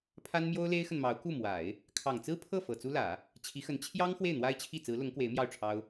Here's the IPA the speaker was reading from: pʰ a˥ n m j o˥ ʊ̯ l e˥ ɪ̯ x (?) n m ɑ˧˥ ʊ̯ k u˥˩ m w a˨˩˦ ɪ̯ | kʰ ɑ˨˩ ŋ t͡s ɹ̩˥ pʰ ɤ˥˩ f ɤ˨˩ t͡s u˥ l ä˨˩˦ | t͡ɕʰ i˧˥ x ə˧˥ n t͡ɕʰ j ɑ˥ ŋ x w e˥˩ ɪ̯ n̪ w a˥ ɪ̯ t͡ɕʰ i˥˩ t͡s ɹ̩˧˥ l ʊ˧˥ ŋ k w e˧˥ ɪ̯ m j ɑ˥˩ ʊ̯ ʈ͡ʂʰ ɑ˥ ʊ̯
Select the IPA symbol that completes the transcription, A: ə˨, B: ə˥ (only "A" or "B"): A